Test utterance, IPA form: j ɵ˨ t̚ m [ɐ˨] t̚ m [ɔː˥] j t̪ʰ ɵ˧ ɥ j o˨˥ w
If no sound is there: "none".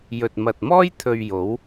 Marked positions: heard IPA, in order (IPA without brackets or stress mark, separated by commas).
ɐ˨, ɔː˥